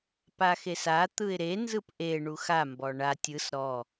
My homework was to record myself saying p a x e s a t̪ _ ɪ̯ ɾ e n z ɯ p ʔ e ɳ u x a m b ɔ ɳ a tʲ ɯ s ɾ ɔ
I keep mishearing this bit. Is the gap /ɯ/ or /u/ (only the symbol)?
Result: ɯ